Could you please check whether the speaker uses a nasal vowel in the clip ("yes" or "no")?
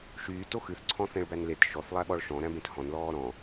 yes